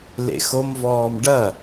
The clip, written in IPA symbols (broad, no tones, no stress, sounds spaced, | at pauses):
l ḛ x o m v ɔː m ɖ ɐ